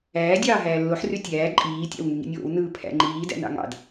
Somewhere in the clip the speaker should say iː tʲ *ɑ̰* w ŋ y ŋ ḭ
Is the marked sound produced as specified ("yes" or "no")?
yes